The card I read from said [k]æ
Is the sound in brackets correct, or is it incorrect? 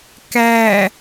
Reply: correct